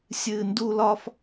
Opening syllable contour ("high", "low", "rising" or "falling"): high